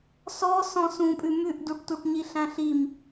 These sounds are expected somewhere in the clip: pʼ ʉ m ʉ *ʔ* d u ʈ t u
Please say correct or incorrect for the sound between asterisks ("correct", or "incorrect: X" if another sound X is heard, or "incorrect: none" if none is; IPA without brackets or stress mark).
correct